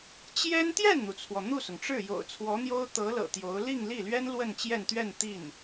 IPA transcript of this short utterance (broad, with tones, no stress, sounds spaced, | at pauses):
t͡ɕ j ɛ˥ n t̪ j ɛ˥˩ n n̪ u˩ t͡sʰ w ɔ˩ n̪ u˥˩ s ʊ˩ ŋ ʈ͡ʂ ɻ̩˥˩ j o̰˨˩ ʊ̯ t͡sʰ w ɔ˧˥ n̪ j o˥ ʊ̯ t̪ ɤ˧˥ l ɤ̰˨˩ t̪ j o˧˥ ʊ̯ l i˥˧ ŋ l i˥˩ l ɥ ɛ˥ n l w ə˥˧ n t͡ɕ j ɛ˥˧ n t̪ ɥ ɛ˥˧ n t̪ i˥˩ n